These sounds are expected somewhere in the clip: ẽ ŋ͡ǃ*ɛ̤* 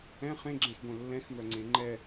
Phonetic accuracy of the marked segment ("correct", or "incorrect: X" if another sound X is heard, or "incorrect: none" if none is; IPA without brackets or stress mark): incorrect: ɛ